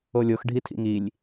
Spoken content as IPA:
o lʲ o x ɖʱ i tʰ ḭ ŋ i lʲ

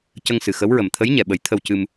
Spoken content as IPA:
c ə˧ ŋ s ɨ˨˩ x ə˧˥ w ɹ ə˨˩ m t̪ʰ ə˧˥ j ɲ ɛ˨˩˨ ɓ ə˨˩˦ j t̪ʰ ə˧ w c ɨ˧ m

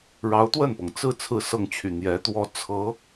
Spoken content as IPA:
ɻ ɑ˧˥ ʊ̯ t̪ w ə˥˩ n p ɤ˩ ŋ t͡s ɹ̩˥˧ t͡sʰ ɹ̩˥˧ s ɤ˥˩ ŋ t͡ɕʰ y˨˩ n̪ j ɛ˧˥ t̪ w ɔ˥˩ t͡sʰ ɤ˧˥

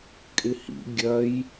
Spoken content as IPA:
kʼ ɪ h ḭ ɡʲ ɐ j

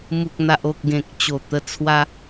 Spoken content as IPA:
m u˨ k̚ n̪ a˨ ʔ o˨ k̚ ɡ ẽ˨ k̚ t͡ɕ o˨˩ t̪ ə˧ t͡sʰ w a˧

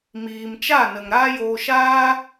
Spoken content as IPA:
m iː˨ m t͡ʃ a˦˨ n ə˨ ŋ ɾ aː˦ j oː˧ ʃ aː˦

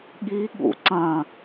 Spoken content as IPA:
ɠ i ɠ ṵ ǀ ɐ̃

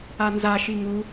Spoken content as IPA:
a n z a ʃ i ŋ u

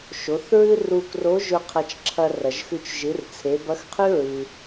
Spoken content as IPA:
ʃ o˩˧ θ ɹ ɨ˥ r u˧ k r o˧˥ ʒ ɵ˧ qʰ ɐ˧ t͡ʃ ǁʰ ɐ˧ r ɐ˩ ʒ x ʉ˧ t͡ʃ ʒ ɨ˩˧ r t͡sʰ e˩˧ b ɐ˧˥ x qʰ ʉ˥ ɹ ɨ˩

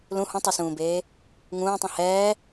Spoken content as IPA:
l ũ h ũ tˤ i s ũː b eː | ŋ ũː tˤ ĩ h ɛː

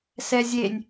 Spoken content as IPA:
s ɛ zʲ e nʲ

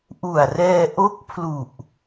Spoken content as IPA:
ʔ u˨˩ a̯ r ɛː˧ ʔ o˦˥ k̚ pʰ l u˨˩ ʔ

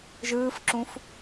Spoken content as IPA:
ʒ ɯː f ǁ ũ f

